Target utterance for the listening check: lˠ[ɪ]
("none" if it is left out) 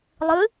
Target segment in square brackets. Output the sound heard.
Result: ɨ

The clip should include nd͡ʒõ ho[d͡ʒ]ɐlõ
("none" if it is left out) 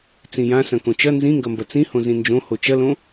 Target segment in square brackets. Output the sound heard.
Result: t͡ʃ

